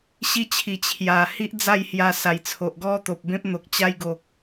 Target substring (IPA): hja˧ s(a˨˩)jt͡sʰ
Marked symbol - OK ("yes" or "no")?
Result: yes